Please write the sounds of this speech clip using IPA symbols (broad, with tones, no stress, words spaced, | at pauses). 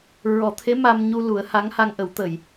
ɹɔ˨˩˦t̪ʰe˧˥ ma˧mɲu˧ lu˨˩˦ə̯ha˧˥ŋ ha˧ŋʔə˨˩˦w t̪ə˨˩˨j